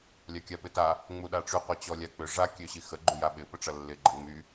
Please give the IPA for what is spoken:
lʲakʲapɪta | ŋ͡muɗaʈ͡ʂy qʷat͡ɕɔlʲak͡pʏ ʐa kʲøɕixə ɡ͡ǃyjaɓɪ pəʈ͡ʂɐlːɪ ɡ͡ǃəŋ͡my

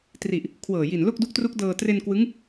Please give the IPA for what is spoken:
tri˨˩ʔ | kʰwɤː˨˩ji˨˩n lo˥˩k̚du˦˥k̚tru˦˥k̚dɤː˧ tre˧nkwɯ˦˥ŋ

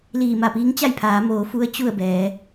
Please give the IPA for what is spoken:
liː˧˩ma˧˩piː˧˥ŋt͡ɕa˥˨j pʰaː˩˧moː˩˧fu˧˥ə̯ t͡ɕu˥˨ə̯bɛː˩˧

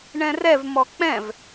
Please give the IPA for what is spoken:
ɳɛ̃rɛv mɔk͡pɛ̃v

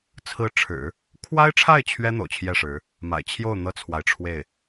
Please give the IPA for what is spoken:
t͡sʰɹ̩˧˥ʈ͡ʂʰɻ̩˨˩˦ | kʰwa˥ɪ̯ʈ͡ʂʰa˥˩ɪ̯ t͡ɕʰɥɛ˥ n̪o̰˨˩ʊ̯t͡ɕʰjɛ˥˩ʂɻ̩˧˥ | ma̰˨˩ɪ̯t͡ɕʰjo˥˩ʊ̯ n̪ɤ˥t͡sʰwa˨ɪ̯ʈ͡ʂʰwe˥˩ɪ̯

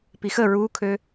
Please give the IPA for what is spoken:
pixə ɹukʰø

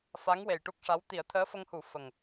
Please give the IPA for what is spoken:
fa˧˥ŋwe˨˩j ʈu˦˥k̚ʂa˧˥w t̪i˨˩˦ə̯t̪ʰəː˧˥fə˧ŋhu˨˩˦ fə˨˩ŋ

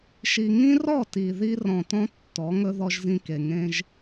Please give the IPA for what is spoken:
ʃi˨ŋĩ˦rɔ˦˨ ti˨ ði˦rɔ̃˨tɔ̃˦ tːɔ˨˦ŋɵ˦ ðɔ˦ʒzĩ˦ke˨ ŋẽ˦ʒ

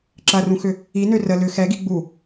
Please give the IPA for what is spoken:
ǁɐrũxʏ | inø rə lʏ xɛɡi ɡ͡bu

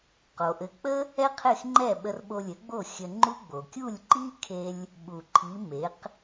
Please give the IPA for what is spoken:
qo˩ʔɘ˩˥k͡pə˥ | ɛ˥qʰe˥˩xŋ͡ǃɛ˥˩ ɓə˧rɓo˧lʲɘ˩˥ɡ͡bo˥˩ xʲə˧ ŋ͡ǃu˥ɡ͡bo˩ kʲu˥˩lʲǃi˥kʰe˧lʲ | ɓu˩ ǃʰi˩˥ me˩˥q

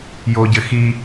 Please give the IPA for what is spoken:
joɟɘ xi

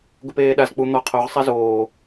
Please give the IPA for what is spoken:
ɡʊpeːɗazk͡pu n̪ɔ qʰoʁ sˤɛzoː

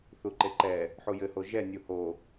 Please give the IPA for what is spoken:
θuǃeǃɛ | ħujɘho ʒɛnʲu ho

